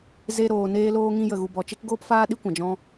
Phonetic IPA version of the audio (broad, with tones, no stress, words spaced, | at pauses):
ze˧ ɾoː˨ neː˧loː˧ŋĩ˧ jə˨ɣu˨bɔ˨t͡ʃe˦k ɡoː˦pfaː˦ɗi˦kʷã˨ d͡ʒɔ̃˦